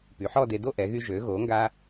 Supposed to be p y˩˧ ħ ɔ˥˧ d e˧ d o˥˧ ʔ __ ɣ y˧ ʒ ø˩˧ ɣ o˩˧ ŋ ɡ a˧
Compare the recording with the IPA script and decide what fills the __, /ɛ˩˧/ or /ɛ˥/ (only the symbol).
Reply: ɛ˩˧